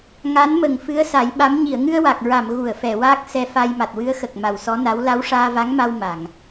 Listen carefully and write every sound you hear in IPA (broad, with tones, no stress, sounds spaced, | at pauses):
ŋ a˧˥ n m ə˨˩ ŋ f ɨ˧˥ ə̯ s a˨˩˦ j ɓ a˧˥ m ɲ i˨˩˨ ə̯ ŋ ɨ˧ ə̯ w a˨˩ k̚ ɹ a˨˩˨ m ɣ u˨˩˨ ə̯ f ɛ˨˩˨ w aː˦˥ k̚ s ɛ˧ f a˧ j m a˨˩ t̚ w ɨ˧˥ ə̯ x ə˨˩ k̚ m a˨˩ w s ɔ˧˥ n a˧˥ w l a˧˥ w ʂ aː˧ v a˧˥ ŋ m a˧ w m a˨˩˨ ŋ